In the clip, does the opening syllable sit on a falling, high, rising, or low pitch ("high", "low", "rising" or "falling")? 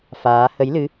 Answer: rising